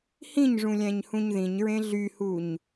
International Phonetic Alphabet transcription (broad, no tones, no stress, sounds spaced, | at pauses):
h ĩ ɲ ʐ ũ lʲ æ̃ ɲ h ũ ɲ ð ĩ ɲ ɹ ẽ ɮ y h u ɲ